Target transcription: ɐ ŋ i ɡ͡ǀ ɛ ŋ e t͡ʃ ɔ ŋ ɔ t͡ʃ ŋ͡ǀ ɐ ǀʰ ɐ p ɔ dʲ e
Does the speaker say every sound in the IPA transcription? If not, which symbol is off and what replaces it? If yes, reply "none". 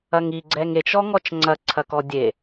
p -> k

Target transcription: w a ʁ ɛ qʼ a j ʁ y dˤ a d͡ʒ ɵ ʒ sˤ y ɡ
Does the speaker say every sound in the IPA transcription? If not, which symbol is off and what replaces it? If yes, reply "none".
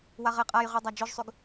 none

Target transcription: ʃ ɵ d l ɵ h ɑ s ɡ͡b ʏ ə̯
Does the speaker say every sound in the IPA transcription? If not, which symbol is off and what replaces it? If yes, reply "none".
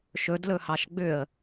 s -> ʃ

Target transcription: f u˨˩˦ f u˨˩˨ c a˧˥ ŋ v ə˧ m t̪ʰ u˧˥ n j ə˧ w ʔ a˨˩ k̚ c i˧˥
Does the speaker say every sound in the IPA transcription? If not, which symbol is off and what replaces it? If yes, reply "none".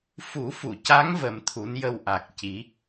none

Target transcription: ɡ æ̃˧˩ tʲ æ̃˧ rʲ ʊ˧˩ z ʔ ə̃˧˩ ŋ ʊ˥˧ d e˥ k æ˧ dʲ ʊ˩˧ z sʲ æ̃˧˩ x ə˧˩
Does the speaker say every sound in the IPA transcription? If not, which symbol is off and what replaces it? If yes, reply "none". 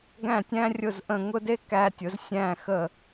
dʲ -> tʲ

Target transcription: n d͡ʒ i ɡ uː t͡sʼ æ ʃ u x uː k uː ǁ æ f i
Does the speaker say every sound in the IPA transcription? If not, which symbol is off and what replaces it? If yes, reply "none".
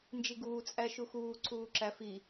k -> ǀ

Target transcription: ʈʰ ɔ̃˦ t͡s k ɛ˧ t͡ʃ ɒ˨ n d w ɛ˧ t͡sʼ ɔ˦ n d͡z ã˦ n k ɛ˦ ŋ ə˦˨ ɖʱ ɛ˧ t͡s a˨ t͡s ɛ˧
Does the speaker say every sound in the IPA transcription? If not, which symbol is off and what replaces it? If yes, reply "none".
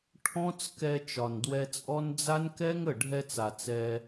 ã˦ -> a˦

